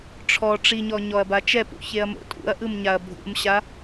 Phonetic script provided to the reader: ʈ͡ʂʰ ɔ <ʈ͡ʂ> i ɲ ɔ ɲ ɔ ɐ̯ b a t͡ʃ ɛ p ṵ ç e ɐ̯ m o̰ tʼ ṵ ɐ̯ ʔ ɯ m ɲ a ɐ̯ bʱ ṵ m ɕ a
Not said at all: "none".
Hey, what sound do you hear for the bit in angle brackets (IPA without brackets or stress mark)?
ʈ͡ʂ